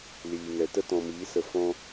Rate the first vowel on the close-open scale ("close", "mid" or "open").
close